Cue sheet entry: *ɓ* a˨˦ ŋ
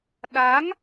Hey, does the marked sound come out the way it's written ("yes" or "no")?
no